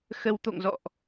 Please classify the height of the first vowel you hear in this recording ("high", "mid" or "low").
mid